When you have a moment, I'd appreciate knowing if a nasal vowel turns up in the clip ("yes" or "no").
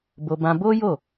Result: yes